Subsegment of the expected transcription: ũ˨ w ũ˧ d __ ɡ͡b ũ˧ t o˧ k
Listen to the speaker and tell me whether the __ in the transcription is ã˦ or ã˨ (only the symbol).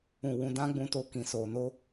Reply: ã˦